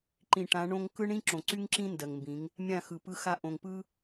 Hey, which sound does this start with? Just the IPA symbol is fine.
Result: ǃ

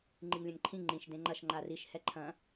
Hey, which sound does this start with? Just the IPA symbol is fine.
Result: ŋ͡ǃ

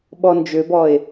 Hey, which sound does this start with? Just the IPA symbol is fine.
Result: ɓ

